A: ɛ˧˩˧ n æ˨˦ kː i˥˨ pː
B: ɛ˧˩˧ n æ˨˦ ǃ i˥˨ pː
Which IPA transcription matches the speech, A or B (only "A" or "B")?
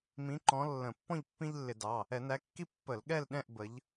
A